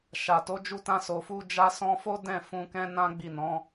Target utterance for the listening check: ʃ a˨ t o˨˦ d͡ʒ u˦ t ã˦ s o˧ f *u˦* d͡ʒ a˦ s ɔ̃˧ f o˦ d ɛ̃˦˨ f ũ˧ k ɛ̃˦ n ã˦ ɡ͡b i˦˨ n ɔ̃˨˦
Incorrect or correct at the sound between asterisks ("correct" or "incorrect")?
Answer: correct